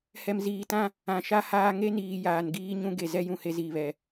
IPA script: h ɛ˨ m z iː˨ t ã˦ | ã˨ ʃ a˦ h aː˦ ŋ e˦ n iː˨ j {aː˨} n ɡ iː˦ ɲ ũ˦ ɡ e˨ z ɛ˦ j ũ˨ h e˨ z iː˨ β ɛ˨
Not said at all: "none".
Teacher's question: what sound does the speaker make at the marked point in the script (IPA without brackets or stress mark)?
aː˨